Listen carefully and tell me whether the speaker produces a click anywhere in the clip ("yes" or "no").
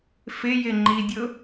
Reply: yes